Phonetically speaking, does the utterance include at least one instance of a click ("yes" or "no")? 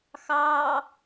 no